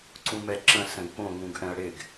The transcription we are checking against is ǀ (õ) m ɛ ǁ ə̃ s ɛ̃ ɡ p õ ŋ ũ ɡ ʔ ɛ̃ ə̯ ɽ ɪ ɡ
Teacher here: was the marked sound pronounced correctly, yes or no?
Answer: no